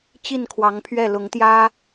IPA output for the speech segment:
t͡ɕ i˥˩ n kʰ w ɑ˧˥ ŋ pʰ ɥ ɛ˥˩ l ʊ˧˥ ŋ t̪ j ä˥

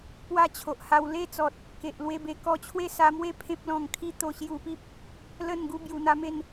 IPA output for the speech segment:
p w a˦ t͡ɕʰ o˨ ʔ h a˧ w l e˥˧ t͡s ɔ˨ t̚ | k e˨ ʔ l w e˥˧ b e˧ k ɔ˧ t͡ɕʰ w e˥˧ s a˧ m w e˦ pʰ ẽ˦ p̚ l ɔ̃˨˩ ŋ kʰ i˥˧ t̪ o˧ ɕ j u˧ p i˦ p̚ | l ə˥˧ n ɡ u˥˧ b j u˧ n̪ a˦ m e˥˧ n

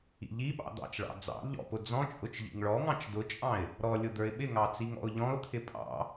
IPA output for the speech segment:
ḭ ʎ i ɓ ɑ̰ d̪ ɑ̰ t͡ʃ ɭ ɑ̰ d͡z ɑ̰ ʎ ɔ̰ p ʊ d͡z ɔ̃ t͡ʃʼ ʊ t͡ʃ ʎ ḭ ŋ ɭ ɔ ŋ ɑ̃ t͡ʃ d ʊ t͡ʃʼ ɑ̃ ɪ̯ | ɾ ɔ lʲ ʊ d̪ ə˞ ɪ̯ ɓ ɪ ŋ ɑ t͡s i ŋ ɔ̰ ʊ̯ ʎ ɔ̃ ʊ̯ t̪ʰ ɪ pʼ ɑ̰

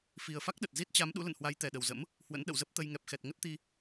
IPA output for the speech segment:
f i˨˩ ə̯ f a˦˥ k̚ ɗ ə˨˩ t̚ z i˦˥ t̚ t͡ɕ a˨˦ m ɗ ṵ˧˥ l ə̰˧˨ n h w a˨˦ j t̪ ɛ˨˩ ɗ ə˨˩ w z ə̰˧˥ m | h w ə̰˧˥ n ɗ ə̰˧˨ w z ə˦˥ p̚ t̪ ə˧ j ŋ ɛ˨˩ p̚ x ɛ˨˩ t̚ ŋ ə˦˥ t̚ t̪ i˧

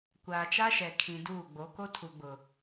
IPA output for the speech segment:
kʷ aː˨ t͡ʃ a˦ ʃ ɛ˨ kʰ ĩ˨ d uː˦˨ ɡ͡b o˨˦ k o˦ tʰ u˨ ɡ͡b ʊ˨

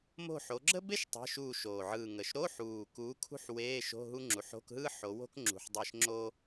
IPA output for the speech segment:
m o̤˦˨ ħ o˨˦ ɡ͡ǁ ə˥ b e˥ ʃ tˤ ə̤˧˥˧ ʃ uː˦˨ ʃ oː˨˩ ʕ ɯː˨˩ ŋ ə˨˩ ʃ ɾ o˧˥˧ ħ uː˨˩ k uː˨˦ kʰ ṳ˥ ħ w eː˧˥˧ ʃ o̤˧˥˧ ɦ u˥ ŋ͡ǁ u˨˦ ħ o̤˧˥˧ k ɦ ɯ˥ ħ o˨˦ w o̤˥ k ŋ͡ǁ ṳ˨˩ ħ dˤ e˦˨ ʃ ŋ͡ǁ o˥

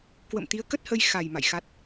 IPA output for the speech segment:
k w ə̰˧˨ m t̪ i˨˦ ə̯ k ə˦˥ t̚ h ə˧ j x a˨˩ j m a̰˧˨ j x a˦˥ t̚

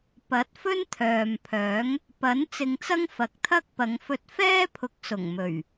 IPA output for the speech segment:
p ɐ˨˥ t̚ f ɵ˥ n t̪ʰ œː˨ m pʰ œː˨˥ ŋ | p ɐ˨˥ n t͡s ɪ˧ ŋ t͡s ɐ˥ ŋ f ɐ˨˥ k̚ t̪ʰ ɐ˥ k̚ p ɐ˨˧ ŋ f ɵ˧ t̚ f ɛː˥ pʰ ʊ˨˥ k̚ s ʊ˨˩ ŋ m ɵ˨˩ ɥ

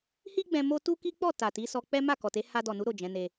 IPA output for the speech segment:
h i˦ ɡ͡b ɛ̃˧ m o˦ t u˦ k i˦ k͡p ɔ˦˨ t a˨ t i˨˦ s ɔ˧ k͡p ɛ˦ m a˦˨ k ɔ˨ t e˨˦ h a˧ d ɔ˨ n u˨˦ ɾ o˦˨ d͡ʒ ɛ̃˨˦ n e˧

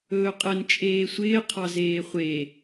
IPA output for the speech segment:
ɵː qʼ ə n t͡ʃʼ eː sʷ ɪː qʰ ɑ z eː χʷ e

